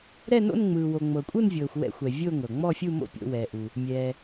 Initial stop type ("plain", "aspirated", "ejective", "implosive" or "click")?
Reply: ejective